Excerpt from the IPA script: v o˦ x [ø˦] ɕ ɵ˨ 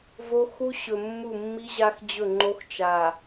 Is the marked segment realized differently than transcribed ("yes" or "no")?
yes